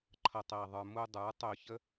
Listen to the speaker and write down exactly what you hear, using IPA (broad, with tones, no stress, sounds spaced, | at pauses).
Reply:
ǃʰ ʌ˨ tˤ æ˨ ðˤ ə˞˧ m u˧ dˤ ə˞˨˦ tˤ ʊː˧ ç ə˦